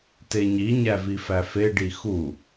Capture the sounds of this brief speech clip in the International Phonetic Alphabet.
t e ɲ i ɲ æ v i f æ f e ɖ i x u

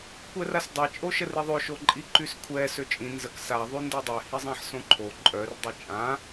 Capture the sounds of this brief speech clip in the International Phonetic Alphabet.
kʷ ɛ r a s dˤ ɛ t͡ʃʼ o ʃ ə r i ðˤ ø ʃ o ǃʼ i ǃ y s kʷʰ ɛ s ø t͡ʃʼ ĩ n z ə k s a ðˤ y n d ɛ dˤ ɛ h i zˤ ã ħ s õ ǃʰ o ǃʼ œ r dˤ i t͡ʃʼ ã

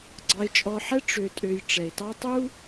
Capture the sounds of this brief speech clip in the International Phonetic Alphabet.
ɡ͡ǀ ɑ˧ ɪ̯ t͡ʃʼ ɔ˧ ħ ɛ˥ ʈ͡ʂ ø˧ tʼ ø˧ j ʈ͡ʂ ɛ˩ ɪ̯ t ɑ˥ tˤ u˥

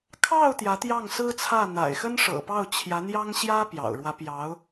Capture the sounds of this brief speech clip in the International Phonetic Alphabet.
kʰ ɑ˥˩ ʊ̯ t̪ j ä˧˥ t̪ j ɑ˥˩ ŋ s ɹ̩˥ t͡sʰ ä˥˩ n̪ a̰˨˩ ɪ̯ x ə˥ n ʂ ɤ̰˨˩ p ɑ˥˩ ʊ̯ t͡ɕʰ j ä˧˥ n̪ j ɑ˥ ŋ ɕ j ä˥ p j ɑ̰˨˩ ʊ̯ ɻ w ä˧˥ p j ɑ˧˥ ʊ̯

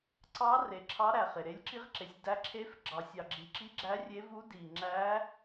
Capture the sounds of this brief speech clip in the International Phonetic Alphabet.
ǀ ɑ˧˥ r e˨ ǁʰ ɑ˧˥ ɾ æ˨ χ e˨ ɾ e˧˥ lʲ ǁ i˧˥ ʁ ǁ e˨ sʲ d æ˧˥ ǁʰ e˧˥ f ɡ͡ǁ ɑ˨ sʲ ɑ˨ ɡ͡ǁ i˨ ǁ i˧˥ ɡ͡ǁ æ˧˥ rʲ e˧˥ v u˧˥ d i˨ ŋ͡ǁ æ˧˥

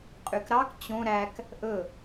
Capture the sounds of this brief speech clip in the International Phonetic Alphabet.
qʼ y k ɾ ɑ k t͡ɕ õ ɾ æ k | ʔ ɵ

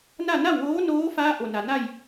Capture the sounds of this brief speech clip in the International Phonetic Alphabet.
n a˥˨ n a˥˨ w ʋ oː˧˥ n oː˧˥ f aː˧˥ ʔ o˩ n a˩ n a˥˨ j

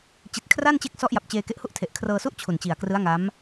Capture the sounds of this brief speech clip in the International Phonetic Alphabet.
t͡ɕ i˨˩ t̚ kʰ r a˥˩ n t͡ɕ e˦˥ k̚ s ɔ˦˥ ʔ j a˨˩ p̚ t͡ɕ eː˧ k e˦˥ ʔ h u˥˩ ʔ tʰ e˨˩ ʔ kʰ r ɤː˧ s u˥˩ ʔ t͡ɕʰ u˨˩ n t͡ɕ i˨˩ a̯ k r ɯ˦˥ a̯ ŋ a˦˥ m

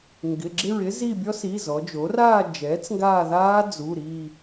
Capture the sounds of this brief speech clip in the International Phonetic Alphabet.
ŋ ɡ ɪ˩˧˩ ɡ͡ǁ ɪ˦˨ ɹ ɪ˦˥ z i˦˨ bʲ ɔ˦˥ s i˩˧˩ z ɔ˩˧ d͡ʒ o˩˥ r aː˦˨ d͡ʒ ɛː˩˥ t͡s ŋ ɡ aː˦˨ ð aː˦˥ d͡z u˩˧˩ ɾ iː˦˨

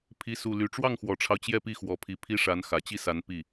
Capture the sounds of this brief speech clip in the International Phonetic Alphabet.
pʰ i˥ s u˥˧ l y˥˧ ʈ͡ʂ w ɑ˥˩ ŋ x w ɔ˨˩ ʈ͡ʂʰ ɑ˦ ʊ̯ t͡ɕ j ɛ˥˧ p i˥˩ x w ɔ˧˥ pʰ i˧˥ pʰ i˥ ʂ a˧˥ n x ä˨˩ t͡ɕ i˥˩ s a˧˥ n p i˥˩

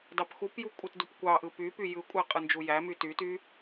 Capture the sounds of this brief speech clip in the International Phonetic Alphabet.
d ɑ p x u p j u kʷʼ ɯ t d u p kʷ ɑ ʔ ɯ p y p y j ɯ kʷʼ æ qʼ ɯ n d͡ʒ u j æ m y t y t y

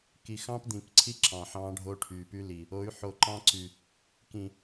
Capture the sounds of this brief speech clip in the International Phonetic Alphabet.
k i˨ x ɑ̃˦ p d̪ ĩ˨ k ǀʰ i˦ ǁ ɑ̃˨ ħ ɑ̃˦ ɖʱ o˦ ʈʰ y˨ p y˦ l i˨ | o˨˦ y̯ ħ o˨ ǃ ɑ̃˦ ǀ y˨ | k ĩ˨

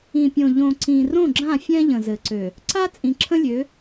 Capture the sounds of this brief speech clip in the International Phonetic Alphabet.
ĩ˨ pʲ õ˨ ʎ õ˨ ǀ ĩ˨ r õ˦˨ ɡ͡ǁ ã˦˨ fʲ ɛ̃˦ ʎ ə̃˨ z ɘ˨ ǀ ø˨ | ǀ a˦ t͡sʼ ĩ˨ ǁʰ ə̃˦ lʲ ø˨˦

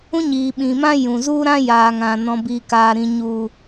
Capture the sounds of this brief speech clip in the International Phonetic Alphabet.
ũ˦ ɲ iː˨ ɓ ĩ˨ m ã˦ j ũ˨ z u˦ ɾ ã˦ j aː˨ ŋ ã˨ n ɔ̃˨ b iː˨ k aː˨ ɾ ĩ˨ ɲ u˨

